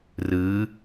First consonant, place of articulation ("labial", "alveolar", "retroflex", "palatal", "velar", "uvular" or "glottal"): alveolar